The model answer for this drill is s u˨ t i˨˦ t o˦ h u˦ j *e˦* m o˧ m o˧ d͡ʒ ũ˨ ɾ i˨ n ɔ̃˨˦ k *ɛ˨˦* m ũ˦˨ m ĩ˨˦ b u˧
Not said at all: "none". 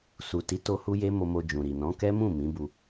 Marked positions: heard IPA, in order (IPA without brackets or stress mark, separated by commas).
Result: e˦, ɛ˦